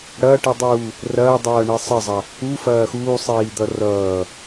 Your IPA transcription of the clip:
ɽɐːʈidˤuː | rɐːdˤʌːɳe sˤəzˤɐ | ufɐː xuːsˤiːd̪ʌ rʌː

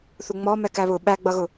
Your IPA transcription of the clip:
θuŋ͡mɔ mɛkæβʊ ɓæ ɡ͡bʌɣʊ

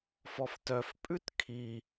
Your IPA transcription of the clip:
fɔftœf pʼʉtkʰi

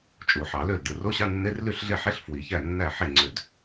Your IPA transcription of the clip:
t͡ʃʼu˨˩˦ħɑ˨˩˦lø˥˩ldɯ˧˩ ro˧˥˧ɕɑ˧˥˧nːe˧˥˧r ly˥˩ɬɮe˥˩ħe˧˥˧ɬ fwi˨˩˦çæ˥˩nːæ˥˩ ħe˥˩ŋ͡ǀø˧˩d

